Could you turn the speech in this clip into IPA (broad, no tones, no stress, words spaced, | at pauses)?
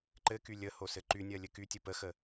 ǃɘky lʲə hosɘǃynʲɜ lʲɘkytʲɘ pəxə